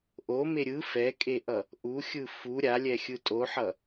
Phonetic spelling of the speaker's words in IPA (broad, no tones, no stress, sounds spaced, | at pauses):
ʔ o m e ɾʲ ɯ f ɛ kʼ e ʔ ʌ | ʔ u xʲ ɯ f u ɾʲ a lʲ ɛ xʲ ɯ tʼ o ħ ʌ